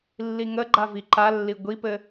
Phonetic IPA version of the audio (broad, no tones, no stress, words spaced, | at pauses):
lːiŋəɡ͡ǃa viǃalːi ɡʷipɘ